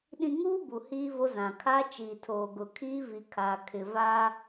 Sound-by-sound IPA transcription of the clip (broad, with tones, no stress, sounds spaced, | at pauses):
ɗ ĩ˨ ŋ uː˦ b u˨ h iː˦ v o˦ z ã˨ kʰ a˦ t͡ʃ iː˨ tʰ oː˨ ɡ ʊ˨ kʰ iː˦ v i˨ kʰ aː˨ kʰ ɪ˨ v a˦